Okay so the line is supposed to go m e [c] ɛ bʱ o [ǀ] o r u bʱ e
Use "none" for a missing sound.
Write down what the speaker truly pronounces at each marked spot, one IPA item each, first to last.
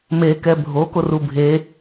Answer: k, k

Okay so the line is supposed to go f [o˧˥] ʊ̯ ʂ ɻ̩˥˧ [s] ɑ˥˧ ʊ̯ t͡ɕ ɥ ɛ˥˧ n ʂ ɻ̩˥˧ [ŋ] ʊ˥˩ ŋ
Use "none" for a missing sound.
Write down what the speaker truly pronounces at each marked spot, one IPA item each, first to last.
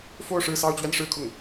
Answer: o˥˧, s, kʰ

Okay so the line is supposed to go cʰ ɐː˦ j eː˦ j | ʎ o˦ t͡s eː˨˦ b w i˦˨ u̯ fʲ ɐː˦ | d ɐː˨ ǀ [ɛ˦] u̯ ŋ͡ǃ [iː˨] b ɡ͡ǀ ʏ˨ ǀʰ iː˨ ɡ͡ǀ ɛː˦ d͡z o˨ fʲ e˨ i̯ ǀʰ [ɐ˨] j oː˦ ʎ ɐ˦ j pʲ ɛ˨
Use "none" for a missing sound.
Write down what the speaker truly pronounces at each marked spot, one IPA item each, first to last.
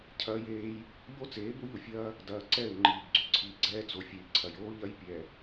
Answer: ɛ˦˨, iː˨, ɐ˨

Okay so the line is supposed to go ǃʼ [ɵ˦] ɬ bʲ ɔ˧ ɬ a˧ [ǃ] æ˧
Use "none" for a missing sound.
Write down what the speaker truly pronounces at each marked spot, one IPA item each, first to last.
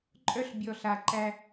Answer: œ˦, ǃ

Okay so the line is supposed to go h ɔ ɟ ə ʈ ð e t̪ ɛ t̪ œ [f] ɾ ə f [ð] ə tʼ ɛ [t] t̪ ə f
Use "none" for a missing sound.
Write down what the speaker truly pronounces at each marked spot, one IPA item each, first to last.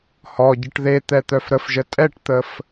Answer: f, ʒ, ʈ

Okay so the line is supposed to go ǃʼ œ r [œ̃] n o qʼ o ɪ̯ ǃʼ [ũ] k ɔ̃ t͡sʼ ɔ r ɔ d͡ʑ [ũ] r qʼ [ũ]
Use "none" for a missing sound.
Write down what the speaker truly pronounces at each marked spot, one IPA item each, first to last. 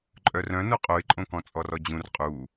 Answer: œ̃, õ, ũ, u

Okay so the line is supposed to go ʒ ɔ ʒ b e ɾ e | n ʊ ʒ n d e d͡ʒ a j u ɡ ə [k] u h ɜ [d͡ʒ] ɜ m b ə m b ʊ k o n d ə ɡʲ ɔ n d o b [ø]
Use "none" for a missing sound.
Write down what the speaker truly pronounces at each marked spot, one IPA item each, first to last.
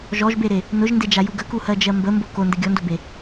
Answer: k, d͡ʒ, e

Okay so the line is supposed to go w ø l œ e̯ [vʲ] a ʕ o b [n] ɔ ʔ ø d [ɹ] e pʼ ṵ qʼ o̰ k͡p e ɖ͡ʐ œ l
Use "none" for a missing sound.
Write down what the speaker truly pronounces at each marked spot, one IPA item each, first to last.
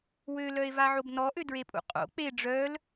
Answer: v, n, ɹ

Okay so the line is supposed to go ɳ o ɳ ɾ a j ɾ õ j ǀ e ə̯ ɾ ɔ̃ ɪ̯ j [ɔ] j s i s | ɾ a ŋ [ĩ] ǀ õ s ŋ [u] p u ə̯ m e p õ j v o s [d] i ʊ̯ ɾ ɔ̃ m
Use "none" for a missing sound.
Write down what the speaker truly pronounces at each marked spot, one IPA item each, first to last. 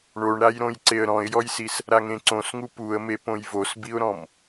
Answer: ɔ, ẽ, u, b

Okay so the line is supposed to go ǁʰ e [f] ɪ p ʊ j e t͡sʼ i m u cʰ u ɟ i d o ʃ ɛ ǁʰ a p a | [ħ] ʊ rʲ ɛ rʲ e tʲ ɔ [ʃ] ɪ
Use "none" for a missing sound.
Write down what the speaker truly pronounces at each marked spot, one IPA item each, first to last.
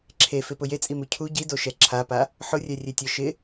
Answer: f, ħ, ʃ

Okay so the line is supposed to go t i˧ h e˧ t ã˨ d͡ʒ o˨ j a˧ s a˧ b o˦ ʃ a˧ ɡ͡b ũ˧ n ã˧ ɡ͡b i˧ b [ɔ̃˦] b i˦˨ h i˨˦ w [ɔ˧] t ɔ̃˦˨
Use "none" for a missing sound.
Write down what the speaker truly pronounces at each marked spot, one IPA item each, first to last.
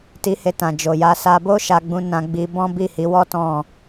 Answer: ɔ̃˦, ɔ˦

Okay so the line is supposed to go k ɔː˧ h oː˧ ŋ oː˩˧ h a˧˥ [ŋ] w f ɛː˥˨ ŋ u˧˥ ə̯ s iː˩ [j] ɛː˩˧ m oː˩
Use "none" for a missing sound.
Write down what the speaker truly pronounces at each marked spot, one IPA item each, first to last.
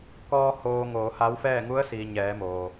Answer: none, ɲ

